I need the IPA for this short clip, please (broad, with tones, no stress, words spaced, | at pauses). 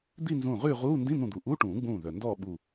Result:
d̪i˥˧nzũː˧˩ʁʉː˥˧ʁuː˧˥˧ ndĩ˧˥˧n̪ũ˧˩d̪u˩ ʔu˧˥˧ʈũː˨˩˦ɡ͡bũː˧˩ ðœ˩ndɔː˥˧ɓuː˧˩